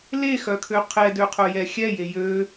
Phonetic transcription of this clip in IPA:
l e x œ kʰ ø qʰ ɛ d ø qʰ œ j ɛ xʲ ɛ j e j ø

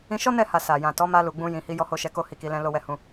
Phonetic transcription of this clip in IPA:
ĩ˧ ʃ ɔ˦ n ɛ˦˨ h a˨ s a˨ j ã˨ t ɔ˨˦ m a˧ l u˨ ɡ͡b ũ˧ j ĩ˨ h i˨˦ j ɔ˦ h o˦ ʃ ɛ˧ k o˦ h i˦˨ k i˨˦ l ɛ̃˦ l o˧ w ɛ˧ h ũ˧

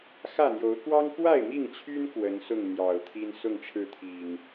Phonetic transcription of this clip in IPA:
x ä˥˨ n̪ j o˨˦ ʊ̯ k w ɑ˦ ŋ k w a˥˨ ɪ̯ m i˥˨ ŋ t͡ɕʰ y˦ n k w ə˨˦ n s ʊ˥˨ ŋ n̪ j ɑ˨˩ ʊ̯ t̪ʰ i˦ n s ʊ˥˨ ŋ ʈ͡ʂʰ ɻ̩˥˨ t̪ʰ i˨˩ ŋ

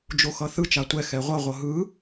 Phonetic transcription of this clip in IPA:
d͡ʒ o x ʌ θ ɯ t͡ʃ a tʷ ɛ x ɛ ʁʷ ʌ ʁʷ ʌ ɦ ɯ

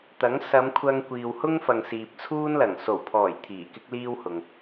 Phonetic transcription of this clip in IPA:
t̪ ɐ˨˥ ŋ s ɐ˨˧ m kʷʰ ɐ˧ ŋ kʷ iː˨ w h ʊ˥ ŋ f ɐ˨ ŋ s iː˨ p̚ t͡sʰ uː˥ n l ɐ˨˩ ŋ s o˨˩ w pʰ ɔː˨˩ j t̪ʰ iː˨˩ k ɪ˥ k̚ l iː˥ w h ʊ˨ ŋ

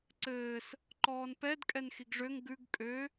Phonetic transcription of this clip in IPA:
ǀ ɘː s | ǃ ɔː n p ɛ d kʼ ɛ n x i ɡ ʐ ø ŋ ɡ ʉ ɡ kʼ ø

